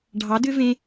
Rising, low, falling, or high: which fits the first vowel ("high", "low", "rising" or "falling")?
rising